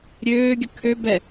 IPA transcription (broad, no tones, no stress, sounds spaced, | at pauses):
ɾʲ øː ɡʲ ə kʰ ø b ɛ